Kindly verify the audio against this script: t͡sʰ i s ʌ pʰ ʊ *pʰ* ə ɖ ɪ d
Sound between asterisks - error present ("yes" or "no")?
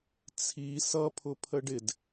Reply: no